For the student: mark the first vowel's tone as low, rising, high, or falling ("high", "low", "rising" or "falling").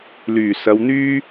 low